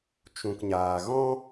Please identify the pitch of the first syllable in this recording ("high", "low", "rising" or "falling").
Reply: low